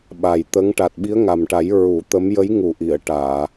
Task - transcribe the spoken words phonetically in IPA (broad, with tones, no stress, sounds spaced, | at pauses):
ɓ a˨˩ j t̪ ə˧˥ ŋ ʈ a˨˩ t̚ ɓ i˧˥ ə̯ ŋ a˨˩ m ʈ a˨˩˦ j ɹ u˨˩˦ t̪ ə˧˥ m j ə˧˥ j ŋ u˨˩ ʔ i˨˩˨ ə̯ ʈ aː˨˩˨